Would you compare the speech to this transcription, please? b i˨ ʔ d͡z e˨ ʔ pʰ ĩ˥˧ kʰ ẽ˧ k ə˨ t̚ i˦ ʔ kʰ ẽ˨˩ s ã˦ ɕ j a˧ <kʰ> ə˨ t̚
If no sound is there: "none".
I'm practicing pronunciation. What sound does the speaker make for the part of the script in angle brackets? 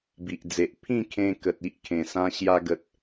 ɡ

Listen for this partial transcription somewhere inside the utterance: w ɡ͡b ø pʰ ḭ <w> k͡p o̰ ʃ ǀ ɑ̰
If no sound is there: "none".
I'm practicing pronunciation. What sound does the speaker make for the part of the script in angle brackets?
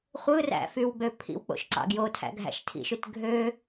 w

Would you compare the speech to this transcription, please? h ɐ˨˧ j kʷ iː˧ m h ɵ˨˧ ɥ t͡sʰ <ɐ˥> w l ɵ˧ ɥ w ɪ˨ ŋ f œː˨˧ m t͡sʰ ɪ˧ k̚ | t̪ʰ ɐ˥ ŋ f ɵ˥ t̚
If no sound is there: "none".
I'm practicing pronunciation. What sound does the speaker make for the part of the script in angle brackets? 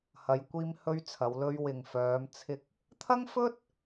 ɐ˨˧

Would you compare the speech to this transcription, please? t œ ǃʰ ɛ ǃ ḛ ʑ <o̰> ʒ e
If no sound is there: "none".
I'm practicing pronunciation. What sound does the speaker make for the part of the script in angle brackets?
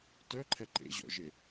ɔ̰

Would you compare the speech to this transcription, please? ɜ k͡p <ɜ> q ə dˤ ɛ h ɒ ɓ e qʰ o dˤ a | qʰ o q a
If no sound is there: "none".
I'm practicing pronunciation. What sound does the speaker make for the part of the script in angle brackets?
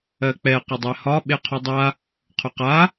ɛ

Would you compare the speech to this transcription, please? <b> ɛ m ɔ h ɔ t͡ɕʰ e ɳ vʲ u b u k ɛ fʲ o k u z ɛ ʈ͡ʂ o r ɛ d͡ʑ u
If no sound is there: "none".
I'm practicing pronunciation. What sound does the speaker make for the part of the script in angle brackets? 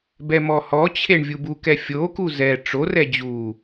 b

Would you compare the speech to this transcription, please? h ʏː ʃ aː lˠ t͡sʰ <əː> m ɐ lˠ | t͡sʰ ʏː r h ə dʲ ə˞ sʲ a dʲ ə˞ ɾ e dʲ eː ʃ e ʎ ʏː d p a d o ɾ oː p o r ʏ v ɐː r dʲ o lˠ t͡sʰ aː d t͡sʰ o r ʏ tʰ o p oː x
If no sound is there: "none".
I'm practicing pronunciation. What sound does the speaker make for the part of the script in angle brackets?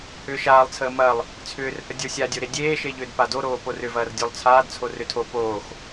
əː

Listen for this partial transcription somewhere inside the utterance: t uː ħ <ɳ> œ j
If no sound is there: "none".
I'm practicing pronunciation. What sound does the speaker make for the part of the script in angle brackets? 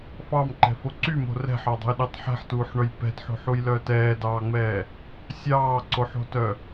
ɳ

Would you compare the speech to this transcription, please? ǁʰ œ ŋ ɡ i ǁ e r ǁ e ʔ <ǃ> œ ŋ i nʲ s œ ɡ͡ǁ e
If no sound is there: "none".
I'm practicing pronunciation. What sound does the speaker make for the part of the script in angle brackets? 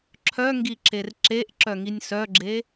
ǁ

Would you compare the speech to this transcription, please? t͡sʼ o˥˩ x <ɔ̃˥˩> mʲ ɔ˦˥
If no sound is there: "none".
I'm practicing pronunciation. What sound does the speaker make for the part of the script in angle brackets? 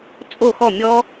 ɔ˥˩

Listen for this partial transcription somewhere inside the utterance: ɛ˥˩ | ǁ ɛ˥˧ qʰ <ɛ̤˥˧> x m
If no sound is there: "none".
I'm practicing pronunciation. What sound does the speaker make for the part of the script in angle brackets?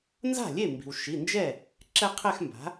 ɛ˥˧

